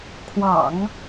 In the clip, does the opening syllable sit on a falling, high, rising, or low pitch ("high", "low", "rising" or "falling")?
low